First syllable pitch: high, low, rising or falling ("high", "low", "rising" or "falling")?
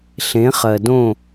rising